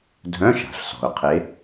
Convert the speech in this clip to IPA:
dʱ œ̃˧˥˧ ʃ a̤˩ ɬ s ɔ̤˩ ʊ̯ qʰ e˨˦

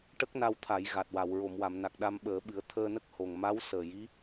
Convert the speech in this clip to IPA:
ʈ ə˦˥ k̚ n a˧ w t̪ʰ a˨˩˦ j ɣ a˨˩ t̚ w a˨˩˨ w ɹ o˨˩˨ m w a˨˩˨ m n a˨˩ k̚ ɗ a˧ m ɓ əː˨˩˦ ɓ ɨ˨˩˦ ə̯ t̪ʰ əː˧ n ə˦˥ k̚ h o˨˩ ŋ m a˧˥ w s əː˨˩ j i˧˥

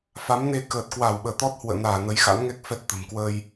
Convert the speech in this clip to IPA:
f a˨˦ m n e˧ k əː˨˩ t̚ k w a˧˩ w ɓ əː˧˩ t̪ ɔ˦˥ t̚ h w ə̰ː˧˨ n aː˧˩ n ə˨˦ j x a̰˧˥ n ŋ ɛ˦˥ k̚ f ɛ˦˥ t̚ t̪ ə̤˨˩ m k w əː˧ j

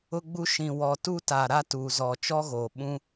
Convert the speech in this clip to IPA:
ʊ˦ ɡ͡b u˦ ʃ ĩ˨ w ɔ˨ t u˦ t a˨ ɾ a˦ t uː˨ z ɔ˨ t͡ʃ ɔ˦ ɣ oː˨ ɓ ũ˦

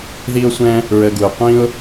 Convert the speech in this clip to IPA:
ð i˦ ʊ̯ sʷ ɛ̃˦ | ɹ ə˧ ɡ u˨ ɪ̯ qʷ ĩ˦ ʊ̯

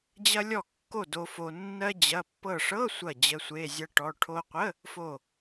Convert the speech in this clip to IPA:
d͡ʑ ɐ˧ lʲ ɔ˧˩ kː o˧˩ d o˧ f o˧ nː ɜ˧ d͡ʑ ɐ˩˧˩ pː ɤ˧˩ ʂ ɤ˧˥˧ sʷ ɐ˧˩ d͡ʑ ə˩˧˩ sʷ e˩˧˩ zʲ ɐ˧ ʈ ɔ˩˧˩ ʈʰ o˧ qʷ ə˧˥˧ | f o˧˩

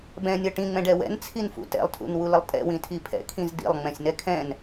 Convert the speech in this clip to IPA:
b ɛ̃ nʲ ɤ ʈ ĩ ŋ͡m ɛ̃ ɖ ɛ w ɛ̰ n t͡sʰ i n f ṵ t ɛ̰ lˠ tʰ ṵ n w u l ə lˠ tʼ ɛ̰ w ĩ tʰ i pʰ ɛ̰ kʰ ĩ z d ḭ lˠ ŋ͡m ɛ̃ sʲ n ɛ kʰ ɛ̃ n

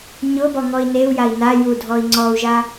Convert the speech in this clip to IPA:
ɲ ʊ b ɔ ŋ ɔ i̯ n e u̯ j a i̯ n a j u dʱ ɔ i̯ ŋ͡ǀ ɔ u̯ ʒ a

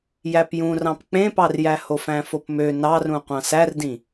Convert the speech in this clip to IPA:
j æ p j ũ r ɑ̃ p k͡p ẽ p ɑ r j æ h o f æ̃ f o p m ø n ɑ r ũ qʷ ɑ̃ s æ r d ĩ

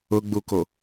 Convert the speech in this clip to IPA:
ʊ ɡ͡b u k o

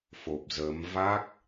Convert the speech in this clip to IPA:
f o˨˩ p̚ z əː˨˦ m v a˦˥ k̚

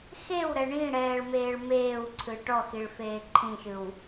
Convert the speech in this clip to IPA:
x e w ɾ ɛ ɳ ĩ ɽ ɛː ɭ m eː ɭ m eː w ǀʰ ɯ ʈ ɔ x i ɭ f eː ǃʰ ĩ ʃ ɯ w

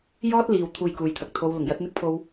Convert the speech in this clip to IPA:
j ɔː˥ t̚ l iː˨ w t̪ʰ uː˧ j k uː˨ j t̪ʰ ɐ˨ k̚ t̪ʰ o˨˧ w l ʊ˨˩ ŋ j ɐ˨˥ t̚ n̪ ɪ˥ k̚ pʰ o˧ w

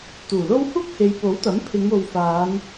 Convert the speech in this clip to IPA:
t̪ uː˨˩ l o˥ w h uː˥ k̚ h e˨˧ j p o˨˥ w t̪ ɐ˨˥ m pʰ ɪ˨˧ ŋ o˨ w f aː˨˧ n

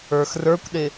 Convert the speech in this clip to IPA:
ə˞ x r ə˞ kʷ ɗ ɪ

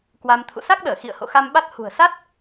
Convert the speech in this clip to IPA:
k w a˧ m t̪ʰ ṵ˧˨ s a˦˥ k̚ ɗ əː˧˩ x ḭ˧˨ ə̯ h o̰˧˨ x a˧ m ɓ a˦˥ t̚ h ṳ˨˩ ə̯ s a˦˥ t̚

